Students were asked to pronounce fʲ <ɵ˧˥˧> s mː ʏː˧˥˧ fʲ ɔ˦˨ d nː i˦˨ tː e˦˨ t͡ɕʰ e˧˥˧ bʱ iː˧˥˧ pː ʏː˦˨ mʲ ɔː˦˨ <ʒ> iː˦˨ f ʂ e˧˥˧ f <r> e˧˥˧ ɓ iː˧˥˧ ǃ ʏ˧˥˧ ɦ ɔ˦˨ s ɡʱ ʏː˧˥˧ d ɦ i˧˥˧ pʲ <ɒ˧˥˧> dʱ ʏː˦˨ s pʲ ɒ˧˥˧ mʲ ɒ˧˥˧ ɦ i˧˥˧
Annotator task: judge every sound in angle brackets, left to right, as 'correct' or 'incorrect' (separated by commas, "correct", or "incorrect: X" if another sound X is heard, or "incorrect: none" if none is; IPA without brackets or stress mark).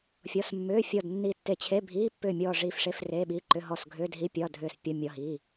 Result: incorrect: ɔ˧˥˧, incorrect: ʐ, correct, correct